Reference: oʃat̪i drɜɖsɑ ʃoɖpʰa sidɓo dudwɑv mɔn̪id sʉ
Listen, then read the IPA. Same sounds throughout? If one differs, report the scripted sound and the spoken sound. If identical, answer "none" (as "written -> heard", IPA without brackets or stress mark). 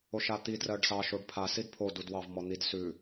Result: ɓ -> pʰ